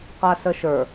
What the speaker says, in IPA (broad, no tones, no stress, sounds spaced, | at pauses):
q a s ə ʃ ə˞